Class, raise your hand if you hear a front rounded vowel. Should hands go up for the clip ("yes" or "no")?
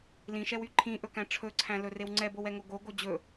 yes